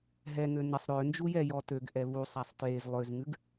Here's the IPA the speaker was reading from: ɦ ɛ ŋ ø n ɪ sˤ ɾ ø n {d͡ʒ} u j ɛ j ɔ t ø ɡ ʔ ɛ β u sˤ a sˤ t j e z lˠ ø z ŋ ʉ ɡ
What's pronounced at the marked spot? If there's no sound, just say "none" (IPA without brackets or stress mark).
d͡ʒ